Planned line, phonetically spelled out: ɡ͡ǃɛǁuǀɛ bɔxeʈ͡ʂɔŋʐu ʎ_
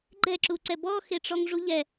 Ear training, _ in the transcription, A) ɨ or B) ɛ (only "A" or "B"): B